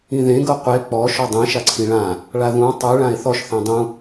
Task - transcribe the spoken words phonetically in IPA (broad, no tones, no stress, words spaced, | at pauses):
ĩðẽ ɡɤqʷe k͡pɔ ʃɔdˤĩ ʃaǀʰĩɭã | ɭaðũ tˤʉ ɭãe̯θɔʃ θẽdˤũ